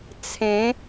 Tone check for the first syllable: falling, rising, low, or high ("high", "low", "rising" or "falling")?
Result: rising